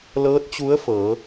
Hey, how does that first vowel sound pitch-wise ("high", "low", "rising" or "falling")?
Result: rising